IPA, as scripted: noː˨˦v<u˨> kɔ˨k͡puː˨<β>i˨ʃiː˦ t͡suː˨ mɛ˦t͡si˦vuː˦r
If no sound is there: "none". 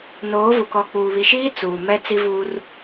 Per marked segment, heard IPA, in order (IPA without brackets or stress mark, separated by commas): u˨, β